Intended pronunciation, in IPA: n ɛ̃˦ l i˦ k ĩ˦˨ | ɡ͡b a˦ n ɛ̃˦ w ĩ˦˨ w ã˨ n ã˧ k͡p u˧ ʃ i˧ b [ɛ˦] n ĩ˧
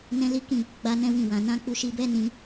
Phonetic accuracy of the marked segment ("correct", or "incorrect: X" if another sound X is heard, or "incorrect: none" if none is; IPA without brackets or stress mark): correct